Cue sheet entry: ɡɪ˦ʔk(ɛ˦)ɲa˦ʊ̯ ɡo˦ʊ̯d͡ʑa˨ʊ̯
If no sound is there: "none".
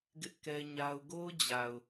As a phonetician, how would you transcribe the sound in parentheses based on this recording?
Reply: ɛ˦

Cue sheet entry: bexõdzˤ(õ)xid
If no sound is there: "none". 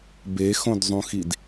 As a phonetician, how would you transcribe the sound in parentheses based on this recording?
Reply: ũ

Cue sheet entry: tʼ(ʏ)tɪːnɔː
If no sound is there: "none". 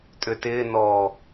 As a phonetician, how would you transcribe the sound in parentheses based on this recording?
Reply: ʏ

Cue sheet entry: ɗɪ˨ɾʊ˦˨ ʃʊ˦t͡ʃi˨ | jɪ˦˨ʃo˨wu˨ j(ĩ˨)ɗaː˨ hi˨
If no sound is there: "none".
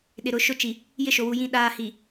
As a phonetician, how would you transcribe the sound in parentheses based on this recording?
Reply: ĩ˨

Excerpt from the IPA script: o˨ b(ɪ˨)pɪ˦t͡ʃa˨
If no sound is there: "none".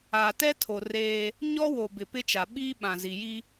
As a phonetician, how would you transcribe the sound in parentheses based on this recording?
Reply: ɪ˨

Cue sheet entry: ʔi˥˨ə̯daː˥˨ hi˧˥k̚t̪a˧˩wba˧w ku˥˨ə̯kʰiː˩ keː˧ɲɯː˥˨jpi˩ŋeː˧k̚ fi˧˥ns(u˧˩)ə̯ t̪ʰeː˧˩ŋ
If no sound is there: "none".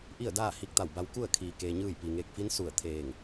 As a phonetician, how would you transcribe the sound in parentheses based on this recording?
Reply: u˧˩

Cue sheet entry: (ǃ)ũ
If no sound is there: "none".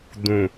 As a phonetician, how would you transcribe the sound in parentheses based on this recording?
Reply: d̪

